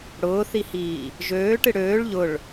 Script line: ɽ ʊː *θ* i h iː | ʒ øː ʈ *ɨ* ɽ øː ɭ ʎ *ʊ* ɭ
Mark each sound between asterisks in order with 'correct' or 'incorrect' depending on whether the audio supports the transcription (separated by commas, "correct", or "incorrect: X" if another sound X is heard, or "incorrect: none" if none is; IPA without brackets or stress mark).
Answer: correct, correct, correct